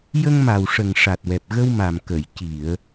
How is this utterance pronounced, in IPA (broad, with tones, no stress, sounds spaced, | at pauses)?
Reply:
j ə˧ ŋ m a˨˩ w ʂ ə˨˩ ŋ ʂ a˨˩ t̚ w ɛ˨˩ p̚ ɣ ə˧ w m a˨˩ m k ə˨˩˨ j c i˨˩˨ ə̯